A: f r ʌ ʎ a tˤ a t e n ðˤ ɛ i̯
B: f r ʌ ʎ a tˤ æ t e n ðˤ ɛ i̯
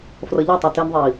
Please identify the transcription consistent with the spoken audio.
B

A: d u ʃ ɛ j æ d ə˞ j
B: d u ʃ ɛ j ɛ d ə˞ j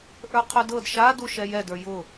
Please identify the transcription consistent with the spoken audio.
B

